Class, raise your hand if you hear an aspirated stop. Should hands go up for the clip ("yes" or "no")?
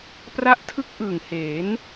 yes